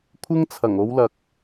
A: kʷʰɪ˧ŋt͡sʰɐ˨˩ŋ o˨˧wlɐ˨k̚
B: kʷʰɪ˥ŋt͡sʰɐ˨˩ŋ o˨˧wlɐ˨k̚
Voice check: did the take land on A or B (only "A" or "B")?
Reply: B